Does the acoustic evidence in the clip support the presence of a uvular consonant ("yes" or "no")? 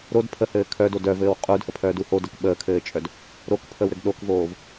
yes